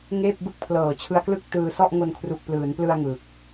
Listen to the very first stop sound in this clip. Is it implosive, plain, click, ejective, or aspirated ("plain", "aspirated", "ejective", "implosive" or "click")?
plain